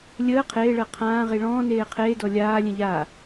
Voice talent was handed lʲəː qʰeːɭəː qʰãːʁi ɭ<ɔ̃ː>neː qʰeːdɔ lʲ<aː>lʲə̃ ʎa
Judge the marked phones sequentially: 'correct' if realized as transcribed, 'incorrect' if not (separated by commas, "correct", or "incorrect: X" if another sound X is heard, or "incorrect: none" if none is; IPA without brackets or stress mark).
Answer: correct, correct